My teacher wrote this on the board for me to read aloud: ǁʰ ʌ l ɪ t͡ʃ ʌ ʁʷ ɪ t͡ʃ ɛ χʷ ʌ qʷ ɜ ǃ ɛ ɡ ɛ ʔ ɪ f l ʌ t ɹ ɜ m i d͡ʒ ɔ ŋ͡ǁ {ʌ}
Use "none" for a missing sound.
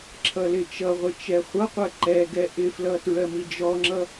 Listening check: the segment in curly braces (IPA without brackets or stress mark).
ʌ